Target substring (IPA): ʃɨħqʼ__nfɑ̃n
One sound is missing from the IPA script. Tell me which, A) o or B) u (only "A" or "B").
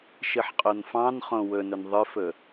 A